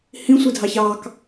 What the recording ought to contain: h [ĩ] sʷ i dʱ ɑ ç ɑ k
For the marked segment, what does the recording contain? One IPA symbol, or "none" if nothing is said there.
ĩ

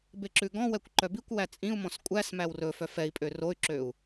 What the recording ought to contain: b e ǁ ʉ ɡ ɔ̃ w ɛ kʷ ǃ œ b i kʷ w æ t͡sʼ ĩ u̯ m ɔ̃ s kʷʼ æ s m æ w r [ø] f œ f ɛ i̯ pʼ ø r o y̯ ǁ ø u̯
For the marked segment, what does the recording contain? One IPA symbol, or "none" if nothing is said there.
ɵ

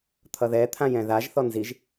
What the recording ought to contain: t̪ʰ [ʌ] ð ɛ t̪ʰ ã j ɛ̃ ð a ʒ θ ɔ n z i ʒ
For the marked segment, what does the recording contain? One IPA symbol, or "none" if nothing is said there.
ʌ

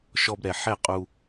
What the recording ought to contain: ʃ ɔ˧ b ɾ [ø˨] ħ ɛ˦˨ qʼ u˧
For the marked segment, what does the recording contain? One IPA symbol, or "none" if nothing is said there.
ɛ˨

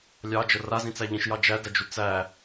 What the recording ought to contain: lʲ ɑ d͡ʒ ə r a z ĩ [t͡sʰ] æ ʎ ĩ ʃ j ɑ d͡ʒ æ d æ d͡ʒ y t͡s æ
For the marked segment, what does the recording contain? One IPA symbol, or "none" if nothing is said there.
t͡s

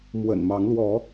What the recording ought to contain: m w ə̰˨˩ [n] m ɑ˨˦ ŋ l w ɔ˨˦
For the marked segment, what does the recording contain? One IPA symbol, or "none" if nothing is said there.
n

